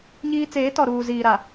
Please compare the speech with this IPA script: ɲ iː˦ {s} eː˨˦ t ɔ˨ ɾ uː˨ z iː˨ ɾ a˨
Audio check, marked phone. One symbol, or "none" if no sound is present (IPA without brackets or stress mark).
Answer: t͡s